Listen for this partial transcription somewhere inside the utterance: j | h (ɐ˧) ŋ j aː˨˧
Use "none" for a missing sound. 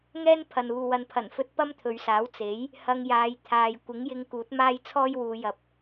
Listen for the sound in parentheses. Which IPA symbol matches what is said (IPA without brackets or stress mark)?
ɐ˧